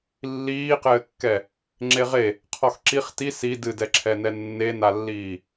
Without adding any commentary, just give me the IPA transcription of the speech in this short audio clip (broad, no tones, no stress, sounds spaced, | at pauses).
lː iː q ɘː kː ɛ | ŋ͡ǁ e ʁ e | qʰ ɔ x ǁ i χ t i s i d ɨ d ɛ ǁʰ ɛ n ɛ nː e n a lː iː